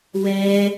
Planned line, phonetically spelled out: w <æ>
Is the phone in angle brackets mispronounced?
yes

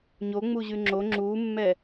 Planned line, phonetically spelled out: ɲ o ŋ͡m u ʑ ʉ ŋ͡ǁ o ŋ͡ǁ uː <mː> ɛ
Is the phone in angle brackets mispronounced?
no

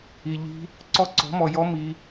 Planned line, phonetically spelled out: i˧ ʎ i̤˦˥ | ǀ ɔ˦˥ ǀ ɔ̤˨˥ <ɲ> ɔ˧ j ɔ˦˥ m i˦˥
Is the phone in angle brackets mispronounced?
yes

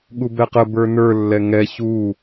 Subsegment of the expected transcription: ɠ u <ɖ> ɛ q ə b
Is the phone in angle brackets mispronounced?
yes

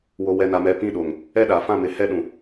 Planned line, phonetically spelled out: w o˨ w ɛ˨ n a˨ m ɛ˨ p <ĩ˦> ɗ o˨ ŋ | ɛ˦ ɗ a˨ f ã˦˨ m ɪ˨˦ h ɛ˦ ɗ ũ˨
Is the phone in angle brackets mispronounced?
yes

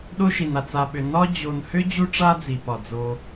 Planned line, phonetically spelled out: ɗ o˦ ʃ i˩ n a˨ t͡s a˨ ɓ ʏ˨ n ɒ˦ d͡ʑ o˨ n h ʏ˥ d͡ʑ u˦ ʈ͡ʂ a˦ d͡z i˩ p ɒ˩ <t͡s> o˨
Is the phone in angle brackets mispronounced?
yes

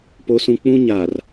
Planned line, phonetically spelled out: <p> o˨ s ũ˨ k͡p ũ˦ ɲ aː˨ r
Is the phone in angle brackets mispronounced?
no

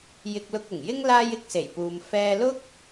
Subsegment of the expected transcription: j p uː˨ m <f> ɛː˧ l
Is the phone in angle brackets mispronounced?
no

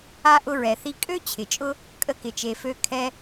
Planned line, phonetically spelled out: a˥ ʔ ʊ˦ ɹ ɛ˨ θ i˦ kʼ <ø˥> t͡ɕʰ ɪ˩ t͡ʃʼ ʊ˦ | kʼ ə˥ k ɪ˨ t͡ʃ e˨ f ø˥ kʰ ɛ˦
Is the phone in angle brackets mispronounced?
no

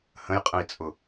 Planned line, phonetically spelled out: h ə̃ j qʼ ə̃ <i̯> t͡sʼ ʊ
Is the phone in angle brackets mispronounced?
no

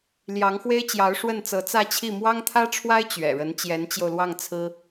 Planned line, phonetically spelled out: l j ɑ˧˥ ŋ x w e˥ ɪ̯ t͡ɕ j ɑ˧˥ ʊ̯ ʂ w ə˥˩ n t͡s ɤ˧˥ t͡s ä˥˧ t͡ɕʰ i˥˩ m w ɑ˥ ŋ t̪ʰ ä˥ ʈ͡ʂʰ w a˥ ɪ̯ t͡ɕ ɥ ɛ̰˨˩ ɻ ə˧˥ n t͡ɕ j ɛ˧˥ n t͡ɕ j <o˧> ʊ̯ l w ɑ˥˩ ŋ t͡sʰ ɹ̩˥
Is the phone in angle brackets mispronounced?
no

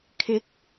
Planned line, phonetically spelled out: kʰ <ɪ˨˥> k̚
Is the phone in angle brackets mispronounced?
no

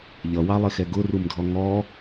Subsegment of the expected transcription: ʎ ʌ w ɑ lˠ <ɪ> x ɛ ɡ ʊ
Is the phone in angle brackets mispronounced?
no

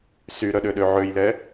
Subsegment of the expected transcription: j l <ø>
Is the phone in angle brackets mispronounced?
yes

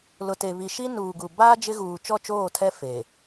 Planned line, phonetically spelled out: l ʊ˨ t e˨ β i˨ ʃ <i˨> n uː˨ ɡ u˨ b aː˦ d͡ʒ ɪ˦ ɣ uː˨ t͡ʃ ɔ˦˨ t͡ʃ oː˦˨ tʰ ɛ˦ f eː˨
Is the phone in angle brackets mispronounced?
yes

